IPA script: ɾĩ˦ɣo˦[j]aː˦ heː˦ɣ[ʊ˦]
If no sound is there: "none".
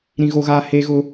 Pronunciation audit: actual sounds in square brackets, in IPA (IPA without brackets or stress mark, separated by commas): ɣ, ʊ˦